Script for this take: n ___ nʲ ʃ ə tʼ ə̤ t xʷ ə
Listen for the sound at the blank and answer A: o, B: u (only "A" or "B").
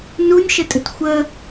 B